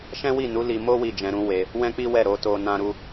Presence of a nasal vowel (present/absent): present